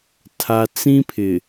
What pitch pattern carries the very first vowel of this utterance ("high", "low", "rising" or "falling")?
low